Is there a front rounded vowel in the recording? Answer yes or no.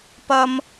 no